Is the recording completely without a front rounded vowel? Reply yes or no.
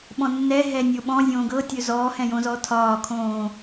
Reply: yes